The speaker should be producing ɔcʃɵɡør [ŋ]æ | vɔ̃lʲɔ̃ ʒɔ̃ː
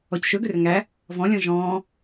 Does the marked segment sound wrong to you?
no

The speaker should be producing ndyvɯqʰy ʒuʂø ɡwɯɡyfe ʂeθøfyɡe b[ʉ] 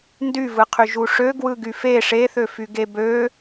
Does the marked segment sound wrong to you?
yes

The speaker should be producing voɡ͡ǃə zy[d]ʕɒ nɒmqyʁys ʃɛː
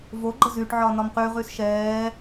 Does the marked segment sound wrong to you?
yes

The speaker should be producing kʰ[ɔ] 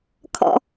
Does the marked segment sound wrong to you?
yes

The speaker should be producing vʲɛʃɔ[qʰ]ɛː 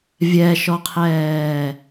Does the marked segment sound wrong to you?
no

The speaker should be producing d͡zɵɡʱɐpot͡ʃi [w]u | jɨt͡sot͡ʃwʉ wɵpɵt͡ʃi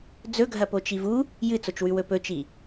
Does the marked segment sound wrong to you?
yes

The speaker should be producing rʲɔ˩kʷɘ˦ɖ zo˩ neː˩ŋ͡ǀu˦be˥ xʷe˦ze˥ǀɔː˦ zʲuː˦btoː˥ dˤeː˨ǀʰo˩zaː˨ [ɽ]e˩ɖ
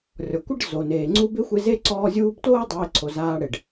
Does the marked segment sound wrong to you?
no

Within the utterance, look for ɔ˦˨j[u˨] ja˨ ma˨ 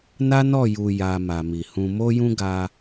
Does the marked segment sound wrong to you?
no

